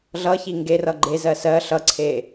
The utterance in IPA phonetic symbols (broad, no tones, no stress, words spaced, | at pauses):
ɮʌçi ŋɡerʌ ɡ͡ǃezɜ sɜ ɬʌǀʰe